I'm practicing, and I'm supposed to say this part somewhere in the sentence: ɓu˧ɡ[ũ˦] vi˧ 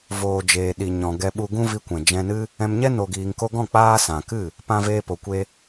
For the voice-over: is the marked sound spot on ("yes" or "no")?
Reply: yes